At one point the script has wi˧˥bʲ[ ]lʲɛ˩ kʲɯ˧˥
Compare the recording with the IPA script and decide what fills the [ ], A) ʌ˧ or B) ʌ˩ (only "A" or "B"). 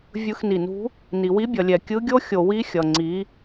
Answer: B